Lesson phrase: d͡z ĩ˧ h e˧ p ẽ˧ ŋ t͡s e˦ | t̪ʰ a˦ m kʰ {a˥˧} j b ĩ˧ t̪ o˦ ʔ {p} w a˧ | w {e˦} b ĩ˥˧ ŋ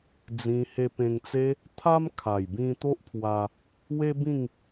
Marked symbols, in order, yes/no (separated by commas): no, no, yes